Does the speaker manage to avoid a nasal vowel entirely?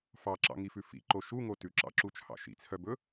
yes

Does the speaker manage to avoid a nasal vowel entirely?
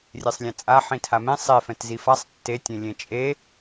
no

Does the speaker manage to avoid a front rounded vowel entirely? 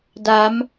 yes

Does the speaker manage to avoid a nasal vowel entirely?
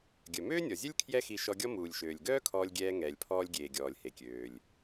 yes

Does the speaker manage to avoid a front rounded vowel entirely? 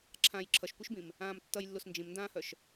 no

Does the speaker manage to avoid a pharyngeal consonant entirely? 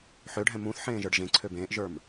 no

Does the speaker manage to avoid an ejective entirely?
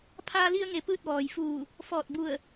yes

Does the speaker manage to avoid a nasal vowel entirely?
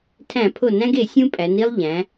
no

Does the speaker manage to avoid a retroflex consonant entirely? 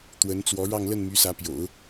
no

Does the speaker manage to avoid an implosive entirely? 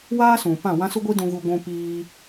yes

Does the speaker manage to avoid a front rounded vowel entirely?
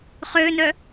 no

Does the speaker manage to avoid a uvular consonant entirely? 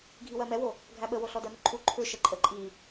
yes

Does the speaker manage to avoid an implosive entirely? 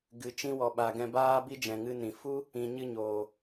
no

